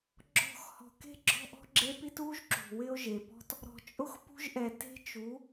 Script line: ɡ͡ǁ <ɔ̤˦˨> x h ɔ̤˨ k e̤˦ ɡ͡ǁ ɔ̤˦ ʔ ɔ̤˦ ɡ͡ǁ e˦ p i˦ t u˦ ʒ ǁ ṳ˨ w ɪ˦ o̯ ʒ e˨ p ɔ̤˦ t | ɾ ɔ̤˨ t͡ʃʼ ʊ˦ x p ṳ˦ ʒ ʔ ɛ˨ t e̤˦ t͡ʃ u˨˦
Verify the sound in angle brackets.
correct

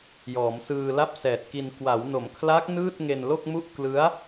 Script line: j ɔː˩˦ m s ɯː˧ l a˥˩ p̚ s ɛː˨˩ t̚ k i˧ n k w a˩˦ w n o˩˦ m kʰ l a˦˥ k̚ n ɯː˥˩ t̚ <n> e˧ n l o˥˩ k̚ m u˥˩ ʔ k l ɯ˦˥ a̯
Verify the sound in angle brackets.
incorrect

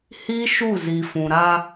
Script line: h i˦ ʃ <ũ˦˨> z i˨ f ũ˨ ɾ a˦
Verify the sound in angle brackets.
incorrect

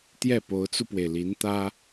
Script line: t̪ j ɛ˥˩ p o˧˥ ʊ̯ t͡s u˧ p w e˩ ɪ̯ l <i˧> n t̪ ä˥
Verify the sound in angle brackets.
incorrect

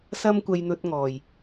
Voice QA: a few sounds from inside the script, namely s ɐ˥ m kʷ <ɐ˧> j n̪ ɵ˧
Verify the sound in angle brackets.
correct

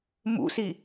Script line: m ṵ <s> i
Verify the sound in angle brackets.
correct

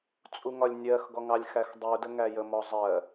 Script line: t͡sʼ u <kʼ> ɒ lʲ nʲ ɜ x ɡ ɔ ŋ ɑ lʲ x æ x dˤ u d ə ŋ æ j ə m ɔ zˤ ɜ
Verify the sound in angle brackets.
incorrect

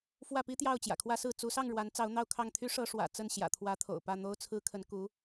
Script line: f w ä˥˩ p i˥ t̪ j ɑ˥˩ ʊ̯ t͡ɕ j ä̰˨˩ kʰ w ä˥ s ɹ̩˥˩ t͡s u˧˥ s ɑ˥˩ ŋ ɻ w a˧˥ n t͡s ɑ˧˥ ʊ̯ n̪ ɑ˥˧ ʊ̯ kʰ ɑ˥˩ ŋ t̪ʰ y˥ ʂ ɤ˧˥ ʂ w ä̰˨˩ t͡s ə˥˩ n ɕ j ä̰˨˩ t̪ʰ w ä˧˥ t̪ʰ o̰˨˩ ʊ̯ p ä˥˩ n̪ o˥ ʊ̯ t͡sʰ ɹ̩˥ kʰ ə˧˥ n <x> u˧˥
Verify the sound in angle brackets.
incorrect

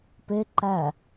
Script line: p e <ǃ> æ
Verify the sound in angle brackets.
correct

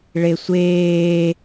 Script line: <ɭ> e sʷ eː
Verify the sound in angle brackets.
correct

